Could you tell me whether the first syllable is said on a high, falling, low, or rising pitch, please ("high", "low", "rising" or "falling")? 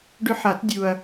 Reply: high